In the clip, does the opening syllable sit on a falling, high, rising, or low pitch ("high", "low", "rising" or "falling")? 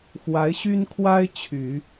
rising